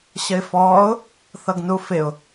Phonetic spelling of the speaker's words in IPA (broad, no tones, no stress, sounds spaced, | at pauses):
ɕ ə ɪ̯ f ɔː ʊ̯ | θ ʌ ɡ n u f ɪ ʊ̯